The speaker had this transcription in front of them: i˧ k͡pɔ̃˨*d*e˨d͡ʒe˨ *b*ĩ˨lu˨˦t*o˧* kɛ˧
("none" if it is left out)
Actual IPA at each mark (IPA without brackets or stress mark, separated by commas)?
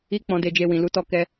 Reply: d, w, ɔ˧